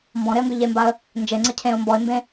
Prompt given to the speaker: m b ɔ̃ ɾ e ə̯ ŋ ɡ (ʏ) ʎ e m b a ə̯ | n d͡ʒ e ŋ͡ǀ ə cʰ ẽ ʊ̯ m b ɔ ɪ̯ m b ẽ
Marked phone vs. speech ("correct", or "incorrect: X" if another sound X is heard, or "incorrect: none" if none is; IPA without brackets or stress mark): correct